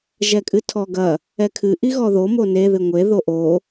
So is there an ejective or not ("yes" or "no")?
yes